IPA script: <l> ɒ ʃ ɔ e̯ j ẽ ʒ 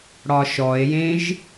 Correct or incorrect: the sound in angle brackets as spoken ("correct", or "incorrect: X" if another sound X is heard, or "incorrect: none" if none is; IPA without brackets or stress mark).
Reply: incorrect: ɽ